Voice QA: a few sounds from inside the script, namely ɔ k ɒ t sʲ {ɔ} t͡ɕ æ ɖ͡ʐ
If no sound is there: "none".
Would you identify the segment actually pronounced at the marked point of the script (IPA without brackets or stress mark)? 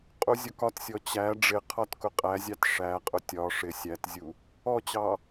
ɔ